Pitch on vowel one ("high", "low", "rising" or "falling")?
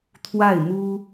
falling